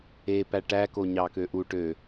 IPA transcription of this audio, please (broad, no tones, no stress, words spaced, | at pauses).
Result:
e pæʈæ koɲɑkøʔu ʈø